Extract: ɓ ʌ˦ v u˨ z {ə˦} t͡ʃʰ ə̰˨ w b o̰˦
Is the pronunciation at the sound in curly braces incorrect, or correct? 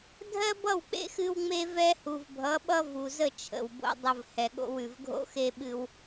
incorrect